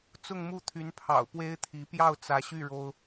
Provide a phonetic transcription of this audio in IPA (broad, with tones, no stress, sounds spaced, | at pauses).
t͡s ʊ˥˧ ŋ m u˥˩ t̪ʰ y˧˥ n pʰ ɑ̰˨˩ ʊ̯ p w e˥ ɪ̯ t̪ʰ i˧˥ p j ɑ˥˩ ʊ̯ t͡s ä˧˥ ɕ y˥˩ ɻ o˥ ʊ̯